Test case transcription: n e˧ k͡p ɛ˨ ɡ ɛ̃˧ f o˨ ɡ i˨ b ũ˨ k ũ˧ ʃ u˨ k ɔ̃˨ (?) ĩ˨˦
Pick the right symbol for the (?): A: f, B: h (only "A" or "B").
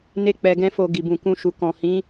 B